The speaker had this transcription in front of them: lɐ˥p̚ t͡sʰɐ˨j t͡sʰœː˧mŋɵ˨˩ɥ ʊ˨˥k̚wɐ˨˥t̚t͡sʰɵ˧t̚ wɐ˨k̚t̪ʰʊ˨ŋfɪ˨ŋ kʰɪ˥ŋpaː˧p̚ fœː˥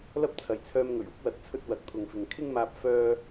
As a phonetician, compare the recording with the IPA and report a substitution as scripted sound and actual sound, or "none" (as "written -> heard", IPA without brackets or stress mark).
p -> m